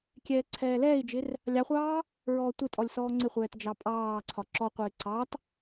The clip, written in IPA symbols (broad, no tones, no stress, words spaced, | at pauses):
kʲɛːǀʰɛːlɛːi̯d͡ʒɪr | lʲɑχʷɑː | ɹɔːtʷɪtʼɔlʲ sɔːŋ͡ǀɪχʷɛːt d͡ʒɑpʼɑːǀʰɒ ǁɔqʷɪː ǀɑt